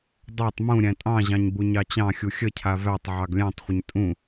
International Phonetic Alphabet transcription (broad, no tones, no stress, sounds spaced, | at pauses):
dˤ æ tˤ m ũ ɾʲ æ̃ tʼ ɑ̃ ʑ ɑ̃ ɲ b u ɲ ɑ t͡ɕ ɑ̃ xʲ u xʲ ə cʰ a v æ tˤ ʕ ɑ ɡ lʲ æ̃ tˤ χʷ ə ɲ tʼ ũ